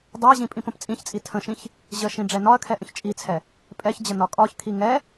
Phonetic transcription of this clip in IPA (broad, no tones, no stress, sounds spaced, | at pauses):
dˤ ɛ ɐ̯ ʑ ĩ pʼ ĩ p ə̃ p t͡sʼ ĩ ç t͡sʼ i tʰ ə̃ ʃ ĩ ç | ʑ ə ʃ ĩ ɖ͡ʐ ɛ n ɒ ɐ̯ kʰ ɛ ʔ ə̃ ç t͡ʃʼ i t͡sʰ ɛ | pʼ ɛ ç d͡ʑ ə n ɒ kʼ ɒ ç kʰ i ŋ ɛ